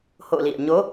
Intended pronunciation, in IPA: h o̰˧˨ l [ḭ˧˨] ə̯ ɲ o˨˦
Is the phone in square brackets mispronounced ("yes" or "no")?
no